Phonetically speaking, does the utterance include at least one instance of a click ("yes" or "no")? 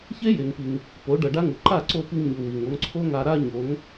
yes